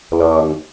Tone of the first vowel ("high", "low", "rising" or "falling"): low